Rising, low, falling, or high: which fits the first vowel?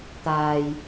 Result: low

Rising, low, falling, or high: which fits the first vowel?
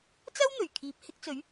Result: high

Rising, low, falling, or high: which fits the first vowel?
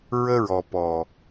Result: high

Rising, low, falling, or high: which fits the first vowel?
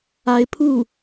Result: rising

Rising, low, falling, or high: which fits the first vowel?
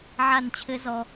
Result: falling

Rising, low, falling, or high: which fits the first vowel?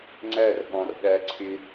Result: falling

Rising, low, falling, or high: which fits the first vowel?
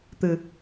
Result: low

